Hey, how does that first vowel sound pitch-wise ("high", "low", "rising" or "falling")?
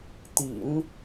low